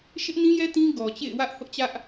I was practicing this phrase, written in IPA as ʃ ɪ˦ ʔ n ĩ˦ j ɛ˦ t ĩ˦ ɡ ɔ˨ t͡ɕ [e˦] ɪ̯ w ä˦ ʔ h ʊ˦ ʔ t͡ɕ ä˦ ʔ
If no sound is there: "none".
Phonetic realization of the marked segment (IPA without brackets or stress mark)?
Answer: ḛ˦˨